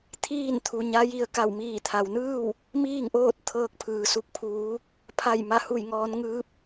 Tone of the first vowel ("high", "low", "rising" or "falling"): falling